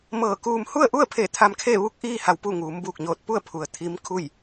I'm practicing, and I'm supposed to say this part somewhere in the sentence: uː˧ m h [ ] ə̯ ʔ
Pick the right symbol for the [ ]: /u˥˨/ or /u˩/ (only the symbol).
u˥˨